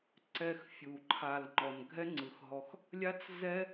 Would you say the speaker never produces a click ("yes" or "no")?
no